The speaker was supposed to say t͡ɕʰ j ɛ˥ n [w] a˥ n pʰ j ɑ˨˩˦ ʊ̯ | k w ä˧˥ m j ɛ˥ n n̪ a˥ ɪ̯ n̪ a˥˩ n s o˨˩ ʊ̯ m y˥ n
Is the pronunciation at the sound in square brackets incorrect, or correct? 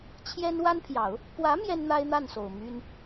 correct